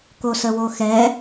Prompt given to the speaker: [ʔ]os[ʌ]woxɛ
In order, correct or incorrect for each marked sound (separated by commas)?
incorrect, incorrect